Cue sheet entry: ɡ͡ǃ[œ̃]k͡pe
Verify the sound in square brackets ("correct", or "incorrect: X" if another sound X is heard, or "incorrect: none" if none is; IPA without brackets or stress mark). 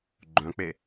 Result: correct